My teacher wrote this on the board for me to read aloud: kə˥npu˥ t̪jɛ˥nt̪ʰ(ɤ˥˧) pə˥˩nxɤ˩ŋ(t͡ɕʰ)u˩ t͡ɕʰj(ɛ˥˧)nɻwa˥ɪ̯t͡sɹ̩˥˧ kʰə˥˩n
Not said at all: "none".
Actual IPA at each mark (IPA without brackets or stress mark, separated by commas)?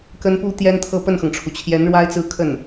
ɤ˥˧, ʈ͡ʂʰ, ɛ˧˥